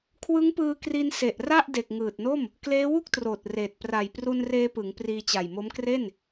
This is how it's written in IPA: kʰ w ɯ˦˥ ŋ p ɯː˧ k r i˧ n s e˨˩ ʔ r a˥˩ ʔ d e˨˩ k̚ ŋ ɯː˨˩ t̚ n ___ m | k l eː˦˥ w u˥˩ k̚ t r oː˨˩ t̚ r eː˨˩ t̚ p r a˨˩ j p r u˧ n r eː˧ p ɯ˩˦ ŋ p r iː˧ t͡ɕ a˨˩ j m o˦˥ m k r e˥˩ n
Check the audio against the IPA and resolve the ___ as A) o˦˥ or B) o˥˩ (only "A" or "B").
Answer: B